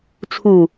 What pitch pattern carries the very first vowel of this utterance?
low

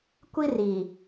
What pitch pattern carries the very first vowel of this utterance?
high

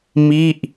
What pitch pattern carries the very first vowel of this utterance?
falling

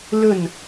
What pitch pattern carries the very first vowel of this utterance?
falling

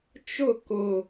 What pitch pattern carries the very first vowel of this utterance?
falling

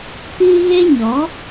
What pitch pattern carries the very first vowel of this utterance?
high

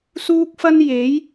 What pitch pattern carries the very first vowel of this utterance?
high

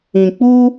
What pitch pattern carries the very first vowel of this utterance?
low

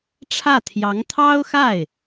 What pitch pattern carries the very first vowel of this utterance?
falling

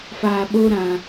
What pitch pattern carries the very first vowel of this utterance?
low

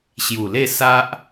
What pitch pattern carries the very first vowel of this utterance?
low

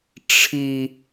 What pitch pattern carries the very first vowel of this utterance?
high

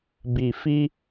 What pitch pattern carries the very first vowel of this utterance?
low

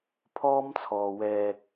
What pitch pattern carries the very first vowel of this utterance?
high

